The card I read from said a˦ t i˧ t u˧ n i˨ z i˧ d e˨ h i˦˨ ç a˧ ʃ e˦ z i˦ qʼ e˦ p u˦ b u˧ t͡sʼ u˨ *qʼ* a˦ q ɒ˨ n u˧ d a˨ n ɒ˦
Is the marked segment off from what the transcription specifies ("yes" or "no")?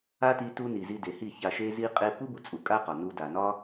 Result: yes